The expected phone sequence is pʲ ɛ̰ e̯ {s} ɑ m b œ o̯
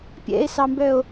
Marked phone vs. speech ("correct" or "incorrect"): correct